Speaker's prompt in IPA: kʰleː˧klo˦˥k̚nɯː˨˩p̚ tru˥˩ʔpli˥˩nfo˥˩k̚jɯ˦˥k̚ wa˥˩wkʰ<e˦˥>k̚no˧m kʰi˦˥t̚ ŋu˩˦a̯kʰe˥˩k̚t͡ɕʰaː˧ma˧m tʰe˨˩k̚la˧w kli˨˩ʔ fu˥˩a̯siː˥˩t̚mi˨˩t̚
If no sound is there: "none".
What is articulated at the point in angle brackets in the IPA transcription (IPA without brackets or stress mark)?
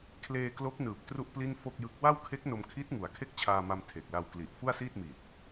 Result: e˦˥